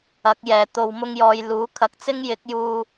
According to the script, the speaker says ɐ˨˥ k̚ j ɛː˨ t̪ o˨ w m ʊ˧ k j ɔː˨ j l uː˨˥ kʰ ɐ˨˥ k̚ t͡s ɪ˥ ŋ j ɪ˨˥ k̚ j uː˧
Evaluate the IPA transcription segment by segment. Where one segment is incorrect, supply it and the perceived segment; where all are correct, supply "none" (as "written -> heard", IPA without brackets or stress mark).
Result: k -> ŋ